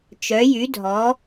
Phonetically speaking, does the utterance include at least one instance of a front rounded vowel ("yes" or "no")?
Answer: yes